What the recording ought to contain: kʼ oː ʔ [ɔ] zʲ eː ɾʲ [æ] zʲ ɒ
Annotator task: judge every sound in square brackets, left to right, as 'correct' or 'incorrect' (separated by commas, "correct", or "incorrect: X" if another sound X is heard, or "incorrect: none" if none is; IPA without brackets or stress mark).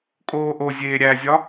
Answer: incorrect: o, correct